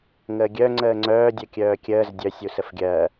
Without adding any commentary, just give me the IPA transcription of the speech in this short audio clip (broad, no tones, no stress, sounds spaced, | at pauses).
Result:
ŋ əː ɡʲ œ ŋ͡ǀ əː ŋ͡ǀ œː dʲ œ kʲ œː kʲ əː z dʲ œ sʲ u s ə f ɡʲ ɜː